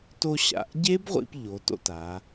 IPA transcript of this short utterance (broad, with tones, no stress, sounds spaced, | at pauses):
t o˧ ɕ a̰˩˧˩ ʔ ɟ e˦˥ b ʁʷ ḭ˧ p ʎ o˩˧ t o̰˥˧ t a˩˧